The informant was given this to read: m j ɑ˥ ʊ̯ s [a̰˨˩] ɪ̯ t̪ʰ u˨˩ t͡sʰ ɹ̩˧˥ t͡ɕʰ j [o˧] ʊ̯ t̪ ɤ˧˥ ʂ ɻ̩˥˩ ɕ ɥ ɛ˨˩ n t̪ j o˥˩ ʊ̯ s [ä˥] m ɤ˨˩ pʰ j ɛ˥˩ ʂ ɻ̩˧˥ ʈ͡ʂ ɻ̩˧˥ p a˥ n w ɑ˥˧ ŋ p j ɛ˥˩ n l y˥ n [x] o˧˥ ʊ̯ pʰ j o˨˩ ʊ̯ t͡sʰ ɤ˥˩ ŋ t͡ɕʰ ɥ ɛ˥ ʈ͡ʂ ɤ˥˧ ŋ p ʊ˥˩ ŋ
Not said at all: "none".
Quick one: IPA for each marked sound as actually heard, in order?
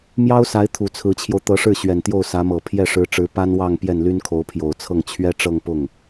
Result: a˧˥, o˧, ä˧˥, kʰ

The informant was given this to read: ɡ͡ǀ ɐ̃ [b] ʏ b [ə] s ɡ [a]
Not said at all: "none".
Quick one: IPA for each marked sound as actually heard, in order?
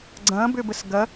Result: b, ə, ɐ

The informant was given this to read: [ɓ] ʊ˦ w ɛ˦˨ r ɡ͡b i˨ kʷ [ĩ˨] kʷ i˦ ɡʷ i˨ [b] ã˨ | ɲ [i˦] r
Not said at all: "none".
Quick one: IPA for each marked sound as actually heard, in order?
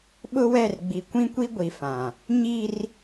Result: ɓ, ĩ˦, f, i˦

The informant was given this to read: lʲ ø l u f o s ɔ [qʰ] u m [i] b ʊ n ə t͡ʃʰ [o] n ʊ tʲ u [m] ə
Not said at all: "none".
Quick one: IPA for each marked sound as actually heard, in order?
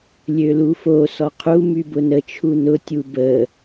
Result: qʰ, y, u, b

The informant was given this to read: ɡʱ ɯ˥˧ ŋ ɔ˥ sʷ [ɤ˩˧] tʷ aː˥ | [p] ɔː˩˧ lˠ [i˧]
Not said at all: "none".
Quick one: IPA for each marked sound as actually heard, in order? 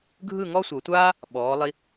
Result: ɤ˩˧, ɓ, i˧

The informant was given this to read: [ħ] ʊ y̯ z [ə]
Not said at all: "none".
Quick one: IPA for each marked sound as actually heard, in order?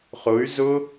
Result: χ, ʊ

